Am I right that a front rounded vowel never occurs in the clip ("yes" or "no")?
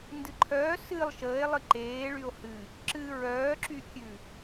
no